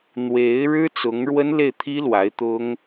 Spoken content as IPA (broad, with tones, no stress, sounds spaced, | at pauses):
n̪ w e˧˥ ɪ̯ ɻ ɻ̩˥ t͡s ʊ˧˥ ŋ ɻ w ə˥ n l e˥˩ ɪ̯ t̪ʰ i˥ l w a˧˥ ɪ̯ t̪ ʊ˥ ŋ